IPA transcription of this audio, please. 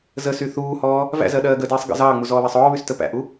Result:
z ə s y θ uː h ɔː | v æ̰ z ɜ ɗ ɜː ɡ ə d iː sˤ ɡ ə̰ z ɑː ŋ͡m u z ɔː β æ sˤ ɔː β y s t ə p æ̰ ʔ u

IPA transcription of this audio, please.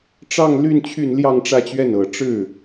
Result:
ʈ͡ʂ ɑ˥˧ ŋ l y˥˧ n t͡ɕʰ y˥˧ n l j ɑ˥˧ ŋ ʈ͡ʂ ä˥˧ t͡ɕ ɥ ɛ˥˩ n ɤ˨˩ ʈ͡ʂ ɻ̩˥˩

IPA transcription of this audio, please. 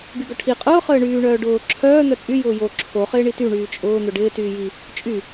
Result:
ɡ y ɡ œ ʈʰ i qʼ ʊː χ əː ɳ yː ɳ œː ɖ ʊː ǁʰ œː n̪ œ t͡sʼ y j ʊː j o ǁʰ o χ ɪː ɳ i t y ɳ yː t͡ʃʼ ʊː n̪ ʊ ɖ ɪː t yː j i | t͡ʃʼ y

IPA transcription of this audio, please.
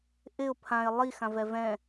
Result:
ʔ ɪ ʊ̯ pʰ ã ɪ̯ lˠ i x ã v ɛ v ɛ̃

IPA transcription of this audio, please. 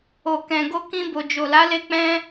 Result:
o˨ k ɛ̃˨ ɡ o˧ k ĩ˧ b o˨ d͡ʒ o˨ l a˨˦ l e˦ k͡p ɛ̃˦

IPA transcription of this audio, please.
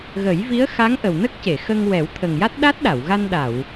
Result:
ɣ ə˨˩˦ j v i˧˥ ə̯ x a˧˥ ŋ ʔ ə˨˩ w n ə˦˥ k̚ c e˨˩˨ x ə˧ ŋ w ɛ˨˩˦ w t̪ʰ ə˨˩ ŋ j a˦˥ t̚ ɗ a˦˥ t̚ ɗ a˨˩˨ w ɣ a˧ n ɗ a˨˩˨ w

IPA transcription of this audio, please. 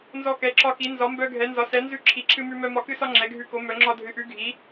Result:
n z ɔ˦ k ɛ˨˥ ǁ ɒ˦ k i˨˥ n z ɒ˨˥ m b œ˦ ɡʱ ɛ˨˥ n z ɒ˨˥ s ɛ˨˥ n z ʉ˦ ǁʰ i˨˥ ǁʰ ɨ˦ m ʉ˦ m œ˦ m ɒ˦ k ɨ˦ s ɒ˦ ŋ͡ǁ ɛ˨˥ ɡʱ ʉ˦ k o˨˥ m œ˨˥ ŋ͡ǁ ɒ˦ dʱ ɨ˨˥ ʔ ʉ˨˥ ɡʱ i˨˥

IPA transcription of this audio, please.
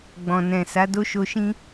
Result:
ɡ͡b ɔ̃˨ n ɛ̃˨ s a˨˦ d o˦ ʃ o˧ ʃ ĩ˦

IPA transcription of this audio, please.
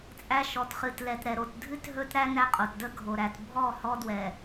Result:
t͡sʼ æ˦ ʃ ɔ˨ t χ ɨ˨ t l ɛ˨ t ɾ ɛ˨ ɾ o˨ t dʱ ɨ˦ t ɦ ɵ˦ t ɾ æ˦ n æ˦ qʼ o˨ t d ə˦ ɡʱ o˨ ɾ æ˨ t bʱ ɔ˦˨ h ɔ˦ d w ɛ˨

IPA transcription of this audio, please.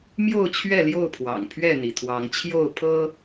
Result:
m j o˥˨ ʊ̯ t͡ɕʰ ɥ ɛ˥˨ l j o˥˨ ʊ̯ pʰ w ɑ̰˨˩ ŋ pʰ ɥ ɛ˥˨ n̪ i˩ t̪ʰ w ɑ˨˦ ŋ t͡ɕʰ j o˥˨ ʊ̯ pʰ ɤ˦

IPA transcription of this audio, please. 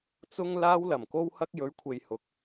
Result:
t͡s ʊ˧ ŋ l aː˧ w l ɐ˨˩ m k o˧ w h ɐ˧ k̚ j ɵ˨˧ ɥ kʷʰ e˨ j h ʊ˨˥ k̚

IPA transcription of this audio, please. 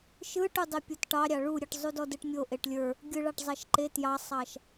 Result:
ʃ ɯ ʈ u dˤ e pʲ o t ʈ ɑ ɾʲ ɑ ɭ u ɾʲ ɯ ʈ zˤ u d ɔ d ɯ ʈ mʲ o ʔ e ʈ lʲ ə˞ | ɡʲ ɯ ɭ ɑ ʈ zˤ ɑ ʃ ǃ e t j ɑ sˤ ɑ ʃ

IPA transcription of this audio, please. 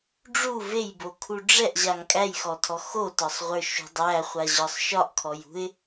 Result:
ɖ͡ʐ u v e j b o kʰ u ɖ͡ʐ ɛ ʔ ʑ a ŋ kʼ æ j x ɔ tʰ ɔ x o t ɒ sˤ ʁʷ ə˞ ʃ ṳ dˤ æ χʷ a ʑ ɒ sˤ ʃ ɒ ʔ kʰ ɔ j ṳ ɪ̯

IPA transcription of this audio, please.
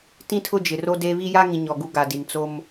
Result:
t ĩ˦ tʰ ʊ˦ d͡ʒ ɪ˨ r o˦ d e˦ β i˦ j a˦ ŋ ĩ˨ ɲ ɔ˨ ɡ u˦ ɡ a˨ d i˨ n t͡s o˦ m

